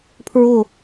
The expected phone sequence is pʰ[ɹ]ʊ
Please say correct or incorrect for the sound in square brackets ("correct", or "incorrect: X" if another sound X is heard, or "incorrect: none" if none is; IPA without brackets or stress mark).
correct